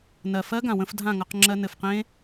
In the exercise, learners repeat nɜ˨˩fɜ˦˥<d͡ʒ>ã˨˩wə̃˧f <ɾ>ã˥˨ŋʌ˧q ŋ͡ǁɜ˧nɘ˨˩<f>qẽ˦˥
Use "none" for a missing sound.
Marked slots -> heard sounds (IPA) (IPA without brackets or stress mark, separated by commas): ɡ, dʱ, f